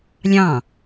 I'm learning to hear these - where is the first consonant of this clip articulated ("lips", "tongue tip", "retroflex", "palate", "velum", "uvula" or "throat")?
tongue tip